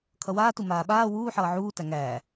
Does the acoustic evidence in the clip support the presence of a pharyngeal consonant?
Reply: yes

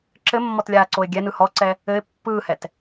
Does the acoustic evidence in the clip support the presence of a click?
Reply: yes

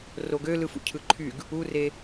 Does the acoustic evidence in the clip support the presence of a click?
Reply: yes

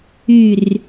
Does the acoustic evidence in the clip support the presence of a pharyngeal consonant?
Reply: no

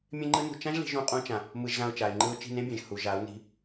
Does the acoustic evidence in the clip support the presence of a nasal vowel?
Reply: yes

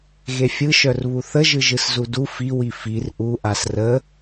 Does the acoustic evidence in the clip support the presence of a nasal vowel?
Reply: no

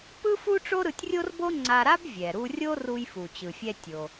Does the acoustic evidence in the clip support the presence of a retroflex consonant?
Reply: yes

